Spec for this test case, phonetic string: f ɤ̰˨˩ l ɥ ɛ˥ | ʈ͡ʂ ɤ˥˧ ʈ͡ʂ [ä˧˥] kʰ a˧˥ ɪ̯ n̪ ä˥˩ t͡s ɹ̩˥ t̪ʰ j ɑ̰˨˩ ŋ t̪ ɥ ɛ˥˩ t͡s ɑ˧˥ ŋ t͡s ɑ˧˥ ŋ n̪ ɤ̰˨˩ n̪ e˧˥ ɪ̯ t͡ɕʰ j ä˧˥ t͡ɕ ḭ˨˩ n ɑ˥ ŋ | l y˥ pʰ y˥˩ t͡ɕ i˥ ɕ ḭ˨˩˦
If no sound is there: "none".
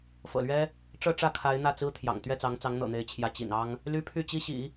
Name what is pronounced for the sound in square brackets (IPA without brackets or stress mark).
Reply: ä˥˩